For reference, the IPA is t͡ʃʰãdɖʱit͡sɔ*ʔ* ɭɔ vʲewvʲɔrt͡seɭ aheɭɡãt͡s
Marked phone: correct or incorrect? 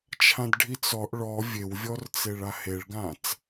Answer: correct